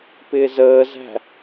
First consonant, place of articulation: labial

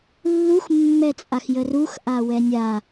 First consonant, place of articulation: alveolar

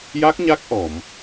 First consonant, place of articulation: palatal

